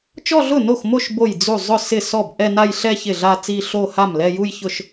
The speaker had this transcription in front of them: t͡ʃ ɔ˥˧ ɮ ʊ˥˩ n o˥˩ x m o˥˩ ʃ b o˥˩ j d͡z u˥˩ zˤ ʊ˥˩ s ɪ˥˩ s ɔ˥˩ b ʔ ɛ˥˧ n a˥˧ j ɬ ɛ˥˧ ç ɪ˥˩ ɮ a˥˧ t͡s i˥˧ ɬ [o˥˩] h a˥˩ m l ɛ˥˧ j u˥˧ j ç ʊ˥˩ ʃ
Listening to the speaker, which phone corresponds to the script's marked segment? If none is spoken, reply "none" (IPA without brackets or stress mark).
o˥˧